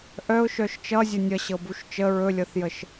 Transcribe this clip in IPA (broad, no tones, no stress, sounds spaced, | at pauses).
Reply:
ʔ œ ʊ̯ ʃ œ ʃ t͡ʃ ʌ zʲ ə nʲ ʌ ɕ ɤ b u ʃ t͡ʃ ə ɹ ɵ lʲ ɤ θ j ə ʃ